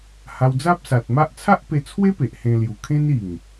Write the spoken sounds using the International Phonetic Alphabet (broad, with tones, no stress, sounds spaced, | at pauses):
h a˧ w d͡z a˦ p̚ s a˨ t̚ m a˦ ʔ t͡sʰ a˦ ʔ p e˧ t͡sʰ w e˦ p e˨ ʔ h ẽ˧ l j u˨˩ kʰ ẽ˦ n i˨˩ ŋ